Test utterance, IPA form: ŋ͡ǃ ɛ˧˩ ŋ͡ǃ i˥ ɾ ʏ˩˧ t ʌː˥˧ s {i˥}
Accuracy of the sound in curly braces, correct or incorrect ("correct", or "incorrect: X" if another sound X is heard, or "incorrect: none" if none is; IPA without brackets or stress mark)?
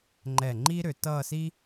correct